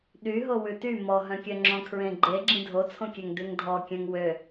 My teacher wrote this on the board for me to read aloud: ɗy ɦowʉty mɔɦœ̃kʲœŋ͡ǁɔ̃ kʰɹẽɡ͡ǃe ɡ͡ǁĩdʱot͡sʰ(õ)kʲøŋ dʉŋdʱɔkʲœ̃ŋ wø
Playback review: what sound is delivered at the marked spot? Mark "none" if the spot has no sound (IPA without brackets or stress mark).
õ